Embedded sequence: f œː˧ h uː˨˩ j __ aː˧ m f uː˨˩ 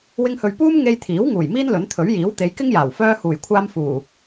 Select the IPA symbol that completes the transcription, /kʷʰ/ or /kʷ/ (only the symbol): kʷʰ